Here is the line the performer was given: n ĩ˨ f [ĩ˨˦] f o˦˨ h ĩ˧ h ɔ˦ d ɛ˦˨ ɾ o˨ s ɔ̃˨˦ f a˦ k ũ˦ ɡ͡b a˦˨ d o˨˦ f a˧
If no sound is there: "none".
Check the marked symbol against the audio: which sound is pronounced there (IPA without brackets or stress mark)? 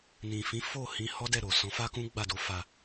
ĩ˨˦